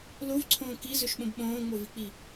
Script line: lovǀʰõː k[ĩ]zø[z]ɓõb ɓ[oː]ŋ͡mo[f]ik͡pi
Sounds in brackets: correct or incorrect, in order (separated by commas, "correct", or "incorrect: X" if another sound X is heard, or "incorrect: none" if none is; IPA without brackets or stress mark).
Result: incorrect: i, incorrect: ʃ, incorrect: õː, incorrect: v